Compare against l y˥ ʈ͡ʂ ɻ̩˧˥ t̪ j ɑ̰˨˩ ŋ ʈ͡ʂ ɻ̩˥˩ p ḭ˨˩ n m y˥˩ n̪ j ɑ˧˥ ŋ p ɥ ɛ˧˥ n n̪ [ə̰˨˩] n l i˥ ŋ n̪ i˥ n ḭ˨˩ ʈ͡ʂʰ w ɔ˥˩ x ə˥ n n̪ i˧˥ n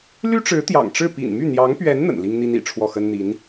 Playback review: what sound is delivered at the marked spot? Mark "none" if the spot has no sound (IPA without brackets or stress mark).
ə̰˨˩